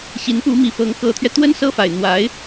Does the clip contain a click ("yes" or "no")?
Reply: no